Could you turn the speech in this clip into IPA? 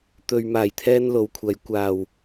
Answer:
t̪ ɵ˨ ɥ m aː˨˩ j t̪ʰ ɛː˥ n l o˨˧ w kʷʰ ɐ˨˧ j kʷ aː˨˩ w

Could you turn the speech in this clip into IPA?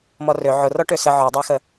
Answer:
m ɔ r ø ʕ ʊ r ɔ ʈ ø s ə ʕ ɔ dˤ æ x ə

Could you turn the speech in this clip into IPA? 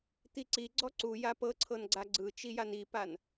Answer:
t̪ i ǀ i ɡ͡ǀ ɔ ǀ u j a p ɤ ǀʰ ɤ n ɡ͡ǀ a ɡ͡ǀ ɯ t͡ʃ i j a n i p a n

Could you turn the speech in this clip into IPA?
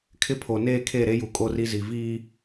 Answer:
kʰ ɪ˦ pʰ o˨ n eː˦˨ kʰ e˦˨ ɾ e˦ j u˨ kʼ o˦ r i˦ z i˨ v iː˦

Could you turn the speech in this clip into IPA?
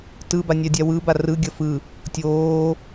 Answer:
t ɯ b a nʲ a dʲ a w ɯ b a r ɯ ɡʲ ʌ f ɯ | tʲ oː

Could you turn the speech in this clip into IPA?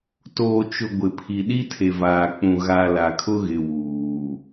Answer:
t oː˨ t͡ʃ ʊ˨ ɡʷ ɪ˨ pʰ i˨ ɗ i˦ tʰ e˨ v aː˨ k͡p ũ˨ ɣ a˨ l a˨ kʰ ʊ˦ ɣ ɪ˨ w uː˨

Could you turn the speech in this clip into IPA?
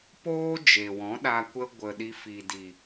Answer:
p oː˦ d͡ʒ e˨ w ɔ̃˨˦ ɗ a˧ kʷ ə˧ ɡʷ ə˨ ɗ i˧ f i˨ d i˨

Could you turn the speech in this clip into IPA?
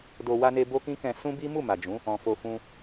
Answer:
d o˨ w a˧ n e˧ b o˦ k ĩ˦ k ɛ̃˧ s ũ˦ b i˦ m u˦˨ m a˨ d͡ʒ ũ˨˦ | ɔ̃˨ f o˧ f ũ˦

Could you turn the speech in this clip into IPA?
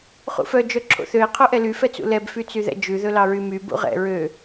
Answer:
χ ṵ f œ d͡ʒ œ ǁʰ o̰ θ ø ɪ̯ qʰ o ʔ ɛ l y f ɛ t͡s ṵ l ɛ b f y t͡s y ð ɛ̰ d͡ʒ ʉ ð ɵ l ɑ ɹ y m y b ṵ ʁ ɛ̰ ɹ ø

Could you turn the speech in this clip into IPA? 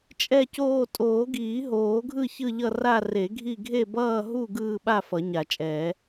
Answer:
t͡ʃʼ ɛ˥˧ c oː˥˧ tʼ oː˨˩˦ ɡ iː˨˩˦ ɦ oː˨˩˦ ɡʱ ɯ˥˧ ç ɯ˥˧ ʎ ʌ˥˧ r a˥˧ r e˨˩˦ ɡʱ i˥˧ ɡʱ e˥˧ b ʌː˥˧ ɦ u˥˧ ɡ ɯː˥˧ ɓ a˥˧ f ʌ˨˩˦ ɲ a˨˩˦ t͡ʃʼ ɛː˨˩˦

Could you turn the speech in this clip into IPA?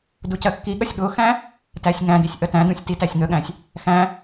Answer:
d u c ɜ kː i ɠ ʌ sʲ ɠ ʊ x æ̃ | t æ sʲ ŋ æ̃ d i sʲ ʔ ə t æ̃ d ũ sʲ t i t æ sʲ ŋ ə ɠ æ̃ sʲ | x æ̃

